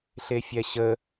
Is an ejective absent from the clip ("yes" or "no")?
yes